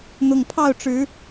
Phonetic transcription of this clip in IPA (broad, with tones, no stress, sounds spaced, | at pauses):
n̪ ʊ˨˩ ŋ pʰ ɑ˥˨ ʊ̯ ʈ͡ʂ ɻ̩˨˦